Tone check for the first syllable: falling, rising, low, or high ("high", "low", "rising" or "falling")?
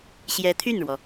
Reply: rising